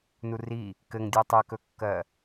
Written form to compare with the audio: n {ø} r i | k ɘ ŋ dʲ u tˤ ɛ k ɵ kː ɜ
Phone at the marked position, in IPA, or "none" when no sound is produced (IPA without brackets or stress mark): u